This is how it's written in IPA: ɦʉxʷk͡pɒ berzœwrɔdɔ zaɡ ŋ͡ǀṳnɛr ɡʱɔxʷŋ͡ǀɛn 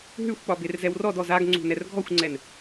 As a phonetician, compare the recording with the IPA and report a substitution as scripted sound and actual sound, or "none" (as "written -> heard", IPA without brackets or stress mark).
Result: œ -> ɛ